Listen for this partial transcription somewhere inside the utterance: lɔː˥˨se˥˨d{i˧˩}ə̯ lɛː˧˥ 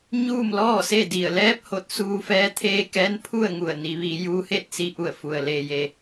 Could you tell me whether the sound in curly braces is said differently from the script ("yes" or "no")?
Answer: no